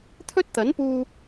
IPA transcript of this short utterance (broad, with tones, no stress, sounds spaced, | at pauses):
t̪ʰ ɵ˥ t̚ t̪ ɐ˨˥ n p uː˧